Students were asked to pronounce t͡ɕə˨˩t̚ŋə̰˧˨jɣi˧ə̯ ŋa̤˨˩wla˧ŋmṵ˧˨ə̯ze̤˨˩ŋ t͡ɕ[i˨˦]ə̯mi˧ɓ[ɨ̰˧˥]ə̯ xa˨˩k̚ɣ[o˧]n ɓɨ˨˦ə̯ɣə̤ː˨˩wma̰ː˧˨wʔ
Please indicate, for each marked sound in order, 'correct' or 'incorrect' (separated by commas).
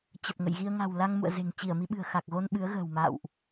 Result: incorrect, incorrect, correct